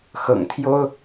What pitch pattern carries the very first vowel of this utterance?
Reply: low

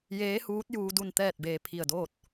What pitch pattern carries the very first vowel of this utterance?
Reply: rising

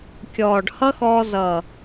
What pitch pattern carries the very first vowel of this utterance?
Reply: low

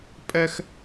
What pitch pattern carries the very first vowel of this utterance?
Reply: high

